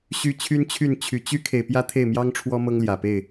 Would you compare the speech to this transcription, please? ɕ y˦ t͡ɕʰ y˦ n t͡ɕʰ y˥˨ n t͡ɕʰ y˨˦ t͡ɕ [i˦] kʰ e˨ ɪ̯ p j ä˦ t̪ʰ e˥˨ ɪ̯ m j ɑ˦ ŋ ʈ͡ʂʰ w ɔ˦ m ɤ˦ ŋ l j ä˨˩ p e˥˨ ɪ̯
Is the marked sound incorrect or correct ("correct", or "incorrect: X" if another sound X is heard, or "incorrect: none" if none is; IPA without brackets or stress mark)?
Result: incorrect: y˦